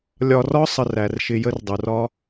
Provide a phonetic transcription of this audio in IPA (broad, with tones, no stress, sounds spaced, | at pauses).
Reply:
lʲ ɒ˧ r ɒ˦ sˤ ə˧ r æ˨ r ʃ ɪ˧ j ə˦ r dˤ u˨ r ɒ˦